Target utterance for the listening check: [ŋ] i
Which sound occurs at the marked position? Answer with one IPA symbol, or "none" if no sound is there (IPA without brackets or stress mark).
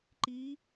ǃ